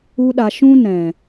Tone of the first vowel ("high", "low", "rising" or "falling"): high